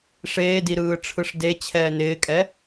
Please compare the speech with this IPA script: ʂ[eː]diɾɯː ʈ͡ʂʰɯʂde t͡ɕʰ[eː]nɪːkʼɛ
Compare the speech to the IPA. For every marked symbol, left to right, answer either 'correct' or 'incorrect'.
correct, incorrect: ɛː

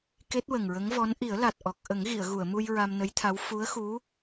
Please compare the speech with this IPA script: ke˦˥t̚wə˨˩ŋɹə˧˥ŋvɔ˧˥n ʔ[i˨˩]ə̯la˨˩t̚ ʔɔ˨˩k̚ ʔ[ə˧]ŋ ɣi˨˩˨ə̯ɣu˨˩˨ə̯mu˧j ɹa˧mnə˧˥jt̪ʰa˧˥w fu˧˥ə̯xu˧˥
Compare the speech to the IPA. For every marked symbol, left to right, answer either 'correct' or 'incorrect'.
incorrect: i˨˩˦, incorrect: ə˨˩˦

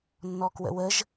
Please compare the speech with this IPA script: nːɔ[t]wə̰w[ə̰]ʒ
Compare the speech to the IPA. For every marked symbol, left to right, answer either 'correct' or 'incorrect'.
incorrect: k, incorrect: ə

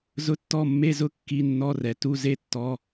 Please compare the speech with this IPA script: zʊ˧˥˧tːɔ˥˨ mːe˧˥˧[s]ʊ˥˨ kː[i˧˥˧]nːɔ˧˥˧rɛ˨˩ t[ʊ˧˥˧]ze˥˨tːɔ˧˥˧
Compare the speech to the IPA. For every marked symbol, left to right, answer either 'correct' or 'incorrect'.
incorrect: z, correct, incorrect: u˧˥˧

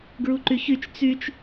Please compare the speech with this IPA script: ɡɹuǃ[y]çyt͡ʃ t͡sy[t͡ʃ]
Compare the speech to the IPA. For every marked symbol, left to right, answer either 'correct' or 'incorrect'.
correct, correct

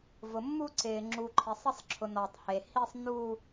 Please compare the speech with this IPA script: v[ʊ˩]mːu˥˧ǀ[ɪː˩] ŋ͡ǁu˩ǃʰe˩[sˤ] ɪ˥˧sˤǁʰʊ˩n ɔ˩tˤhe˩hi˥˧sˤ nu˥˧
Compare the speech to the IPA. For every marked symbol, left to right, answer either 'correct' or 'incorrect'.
correct, correct, correct

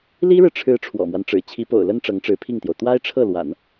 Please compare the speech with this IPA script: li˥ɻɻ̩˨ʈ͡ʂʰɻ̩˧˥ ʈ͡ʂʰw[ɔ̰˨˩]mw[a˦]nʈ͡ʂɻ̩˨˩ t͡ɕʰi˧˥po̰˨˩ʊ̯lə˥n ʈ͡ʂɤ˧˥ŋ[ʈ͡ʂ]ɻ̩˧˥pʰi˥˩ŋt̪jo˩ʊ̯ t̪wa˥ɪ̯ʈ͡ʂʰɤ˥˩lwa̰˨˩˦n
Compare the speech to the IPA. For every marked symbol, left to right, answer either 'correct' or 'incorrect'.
correct, correct, correct

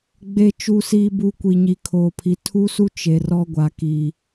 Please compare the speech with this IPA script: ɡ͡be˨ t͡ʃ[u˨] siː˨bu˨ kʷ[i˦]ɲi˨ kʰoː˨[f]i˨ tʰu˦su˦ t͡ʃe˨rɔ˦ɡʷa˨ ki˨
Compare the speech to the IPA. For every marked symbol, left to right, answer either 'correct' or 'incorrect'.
correct, incorrect: i˨, incorrect: pʰ

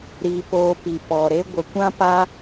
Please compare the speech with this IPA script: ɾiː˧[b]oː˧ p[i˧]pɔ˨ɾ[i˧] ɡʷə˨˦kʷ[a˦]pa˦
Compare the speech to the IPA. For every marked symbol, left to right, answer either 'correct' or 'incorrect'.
incorrect: p, incorrect: i˨, incorrect: e˧, incorrect: ã˦

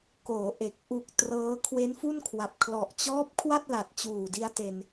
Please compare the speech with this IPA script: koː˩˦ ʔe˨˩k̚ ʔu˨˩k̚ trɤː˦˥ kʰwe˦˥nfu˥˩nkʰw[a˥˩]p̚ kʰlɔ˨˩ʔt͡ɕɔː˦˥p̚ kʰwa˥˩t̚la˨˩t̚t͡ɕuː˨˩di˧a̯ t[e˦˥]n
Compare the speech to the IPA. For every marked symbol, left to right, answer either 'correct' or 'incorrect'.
incorrect: a˨˩, incorrect: e˧

